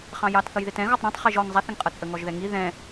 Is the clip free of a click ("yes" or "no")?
yes